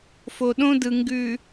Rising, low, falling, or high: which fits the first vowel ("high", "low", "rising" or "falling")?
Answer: low